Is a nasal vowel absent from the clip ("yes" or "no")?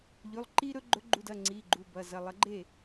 yes